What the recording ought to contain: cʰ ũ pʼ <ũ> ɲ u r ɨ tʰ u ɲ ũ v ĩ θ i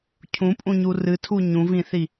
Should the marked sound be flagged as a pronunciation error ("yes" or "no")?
no